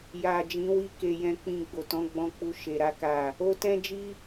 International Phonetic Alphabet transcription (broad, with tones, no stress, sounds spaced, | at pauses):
j a˨ d͡ʒ ĩ˨˦ w i˦ k e˧ j ɛ̃˧ k͡p ĩ˧ ɡ͡b o˨ t ɔ̃˨˦ ɡ͡b ɔ̃˧ k͡p u˧ ʃ e˧ ɾ a˦ k a˦˨ | o˧ t ɛ̃˦ d͡ʒ i˦